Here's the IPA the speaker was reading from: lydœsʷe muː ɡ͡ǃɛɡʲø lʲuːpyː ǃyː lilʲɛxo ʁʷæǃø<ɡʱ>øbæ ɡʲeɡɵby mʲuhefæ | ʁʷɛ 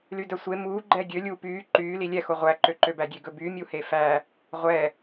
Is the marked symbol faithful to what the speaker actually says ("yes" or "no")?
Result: no